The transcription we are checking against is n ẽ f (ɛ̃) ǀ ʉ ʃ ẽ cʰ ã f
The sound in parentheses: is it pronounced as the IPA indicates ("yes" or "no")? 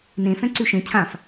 yes